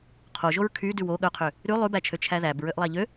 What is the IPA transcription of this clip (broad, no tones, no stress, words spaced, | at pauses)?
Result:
qʰoʒoɹ kʰy dʉwo ɠœqʰø | ɾʉ lˠʉbæt͡ʃʰø t͡ʃʰæðæb ɹøʔlˠæʎø